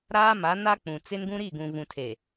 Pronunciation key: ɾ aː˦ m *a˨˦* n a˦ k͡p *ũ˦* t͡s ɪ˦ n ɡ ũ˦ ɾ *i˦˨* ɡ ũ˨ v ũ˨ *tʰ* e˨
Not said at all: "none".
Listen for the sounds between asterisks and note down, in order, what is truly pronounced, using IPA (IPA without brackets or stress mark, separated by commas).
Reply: a˨˦, ũ˨, i˦˨, tʰ